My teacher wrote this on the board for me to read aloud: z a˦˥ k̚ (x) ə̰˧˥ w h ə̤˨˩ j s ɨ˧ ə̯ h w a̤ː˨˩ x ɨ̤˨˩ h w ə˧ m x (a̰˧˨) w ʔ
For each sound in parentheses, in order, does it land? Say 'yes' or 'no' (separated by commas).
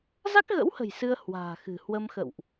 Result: no, no